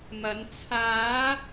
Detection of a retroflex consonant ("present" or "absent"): absent